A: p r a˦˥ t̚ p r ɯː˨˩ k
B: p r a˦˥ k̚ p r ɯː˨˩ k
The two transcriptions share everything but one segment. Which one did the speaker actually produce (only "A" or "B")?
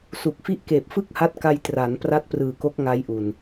A